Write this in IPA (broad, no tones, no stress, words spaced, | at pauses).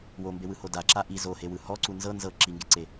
wombewɯho daǁa ʔi zohewɯ hɔǀu nzɤ nzɤ ǁiŋɡeǀe